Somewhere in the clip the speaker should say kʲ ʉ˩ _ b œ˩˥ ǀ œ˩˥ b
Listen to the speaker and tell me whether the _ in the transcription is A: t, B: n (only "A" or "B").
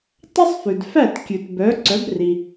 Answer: A